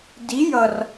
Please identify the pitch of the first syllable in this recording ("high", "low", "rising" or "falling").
rising